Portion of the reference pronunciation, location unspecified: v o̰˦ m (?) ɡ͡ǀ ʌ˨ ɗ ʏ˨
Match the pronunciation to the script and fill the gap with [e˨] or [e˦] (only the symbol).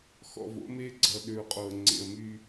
e˦